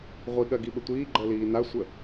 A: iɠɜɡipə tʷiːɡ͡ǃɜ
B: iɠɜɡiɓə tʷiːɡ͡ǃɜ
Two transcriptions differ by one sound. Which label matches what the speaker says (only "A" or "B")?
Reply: B